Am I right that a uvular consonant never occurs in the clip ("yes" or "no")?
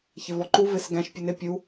yes